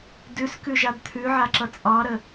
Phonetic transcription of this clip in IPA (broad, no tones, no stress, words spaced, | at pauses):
dʉskʉʒad t̪ʰʉʕaǁʌ t͡sʼɑɾə